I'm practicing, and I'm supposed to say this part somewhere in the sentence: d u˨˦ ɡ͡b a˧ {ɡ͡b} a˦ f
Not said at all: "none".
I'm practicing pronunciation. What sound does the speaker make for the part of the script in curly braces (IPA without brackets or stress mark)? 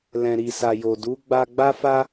ɡ͡b